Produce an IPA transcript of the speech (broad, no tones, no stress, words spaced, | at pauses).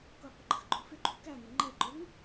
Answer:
kʊqʷəɡ͡ǃəxɡ͡ǃʊ fɪɡ͡ǃu kæŋə ŋ͡ǃɛǃʊŋ